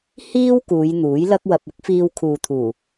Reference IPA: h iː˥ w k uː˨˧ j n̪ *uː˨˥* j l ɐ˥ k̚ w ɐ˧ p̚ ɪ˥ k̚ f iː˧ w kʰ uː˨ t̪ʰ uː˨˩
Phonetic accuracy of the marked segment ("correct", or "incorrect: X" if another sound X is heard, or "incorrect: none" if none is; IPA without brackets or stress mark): correct